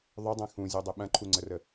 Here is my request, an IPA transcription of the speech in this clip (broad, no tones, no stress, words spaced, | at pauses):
ðˤɵdˤɛ̃ xũzʲudˤɪ ɓɐ̃ǃʰuŋ͡ǀərə